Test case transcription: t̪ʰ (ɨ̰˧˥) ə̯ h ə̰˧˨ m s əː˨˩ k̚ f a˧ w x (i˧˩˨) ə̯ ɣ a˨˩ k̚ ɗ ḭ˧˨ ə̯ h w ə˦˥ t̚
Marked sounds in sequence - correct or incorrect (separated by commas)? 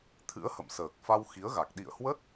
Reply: correct, incorrect